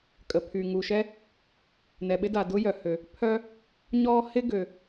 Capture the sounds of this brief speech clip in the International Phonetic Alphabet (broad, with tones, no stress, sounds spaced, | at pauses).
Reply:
kʼ ə˩ pʰ y˩ ŋ u˩ ʃ ɛ˥ | n ɛ˩ ɓ ɪ˥ d a˩ d ʊ˥ j œ˩ h ø˩ | pʰ œ˥ | ɲ ɔ˥ h ɪ˥ ɡ ø˩